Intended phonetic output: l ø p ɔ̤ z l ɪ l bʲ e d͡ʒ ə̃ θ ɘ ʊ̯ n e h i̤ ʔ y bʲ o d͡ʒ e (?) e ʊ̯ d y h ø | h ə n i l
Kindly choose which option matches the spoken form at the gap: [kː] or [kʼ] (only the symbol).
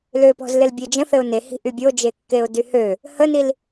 kː